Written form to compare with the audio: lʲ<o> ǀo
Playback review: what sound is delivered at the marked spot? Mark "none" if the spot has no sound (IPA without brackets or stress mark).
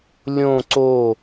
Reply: õ